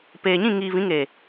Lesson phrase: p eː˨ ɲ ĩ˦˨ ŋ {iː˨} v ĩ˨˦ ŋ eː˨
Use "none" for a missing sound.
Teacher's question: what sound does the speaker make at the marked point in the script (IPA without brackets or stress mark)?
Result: iː˨